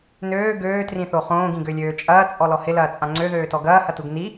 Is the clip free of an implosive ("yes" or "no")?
yes